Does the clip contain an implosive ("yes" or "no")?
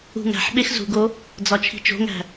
yes